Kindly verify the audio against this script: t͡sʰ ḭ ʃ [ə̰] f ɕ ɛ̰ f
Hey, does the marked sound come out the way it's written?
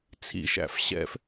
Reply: no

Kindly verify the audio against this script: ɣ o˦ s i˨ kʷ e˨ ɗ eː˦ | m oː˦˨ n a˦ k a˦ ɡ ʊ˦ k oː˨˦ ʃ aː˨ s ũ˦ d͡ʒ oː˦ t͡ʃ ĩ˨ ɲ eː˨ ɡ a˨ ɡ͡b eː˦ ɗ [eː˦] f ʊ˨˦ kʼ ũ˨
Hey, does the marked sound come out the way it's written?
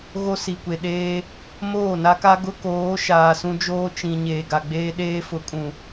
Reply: yes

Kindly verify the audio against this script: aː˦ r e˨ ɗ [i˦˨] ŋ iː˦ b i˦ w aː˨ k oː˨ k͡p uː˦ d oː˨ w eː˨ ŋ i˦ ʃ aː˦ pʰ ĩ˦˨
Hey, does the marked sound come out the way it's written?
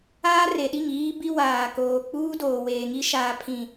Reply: yes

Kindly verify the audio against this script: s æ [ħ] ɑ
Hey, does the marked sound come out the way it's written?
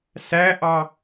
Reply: no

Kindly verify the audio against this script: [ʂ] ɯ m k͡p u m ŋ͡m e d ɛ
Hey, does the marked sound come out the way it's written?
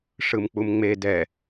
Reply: yes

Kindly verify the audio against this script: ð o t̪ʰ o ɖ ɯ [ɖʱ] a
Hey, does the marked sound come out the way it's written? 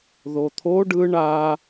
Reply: no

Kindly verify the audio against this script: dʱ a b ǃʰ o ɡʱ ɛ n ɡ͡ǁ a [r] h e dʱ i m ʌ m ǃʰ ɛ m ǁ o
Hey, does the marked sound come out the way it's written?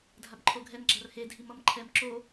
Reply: yes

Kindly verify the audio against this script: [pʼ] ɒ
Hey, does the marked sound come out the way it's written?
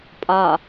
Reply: yes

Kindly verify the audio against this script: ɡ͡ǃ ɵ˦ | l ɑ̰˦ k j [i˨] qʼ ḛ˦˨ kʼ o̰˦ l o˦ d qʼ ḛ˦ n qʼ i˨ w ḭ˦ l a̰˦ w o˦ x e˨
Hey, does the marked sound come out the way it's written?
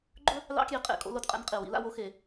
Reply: yes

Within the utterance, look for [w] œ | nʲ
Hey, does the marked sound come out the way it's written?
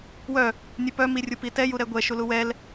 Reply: yes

